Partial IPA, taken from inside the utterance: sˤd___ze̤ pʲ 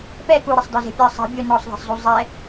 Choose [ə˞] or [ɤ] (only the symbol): ə˞